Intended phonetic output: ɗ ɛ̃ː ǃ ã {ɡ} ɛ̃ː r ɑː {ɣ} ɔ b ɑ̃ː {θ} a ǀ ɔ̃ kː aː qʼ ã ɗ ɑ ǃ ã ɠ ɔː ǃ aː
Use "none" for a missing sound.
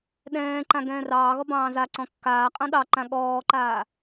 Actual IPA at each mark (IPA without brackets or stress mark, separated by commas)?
ɡ, ɣ, z